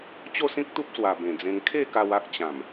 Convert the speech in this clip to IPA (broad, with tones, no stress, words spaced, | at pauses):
t͡ɕo˥˧sĩ˦k̚t̪u˦p̚ swa˨˩ bẽ˨˩d͡zẽ˧ŋ kʰe˥˧ka˧w a˦k̚t͡ɕã˨˩m